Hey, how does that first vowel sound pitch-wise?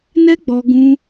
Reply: high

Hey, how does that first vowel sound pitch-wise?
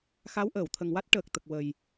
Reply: rising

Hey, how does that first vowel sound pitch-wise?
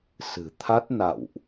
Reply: low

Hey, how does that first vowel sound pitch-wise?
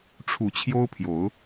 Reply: rising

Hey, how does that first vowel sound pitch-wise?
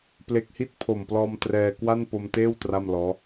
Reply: low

